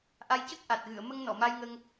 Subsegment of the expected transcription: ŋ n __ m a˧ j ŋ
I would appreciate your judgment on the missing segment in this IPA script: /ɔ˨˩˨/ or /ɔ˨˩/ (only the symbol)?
ɔ˨˩˨